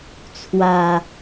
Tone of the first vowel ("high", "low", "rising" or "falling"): low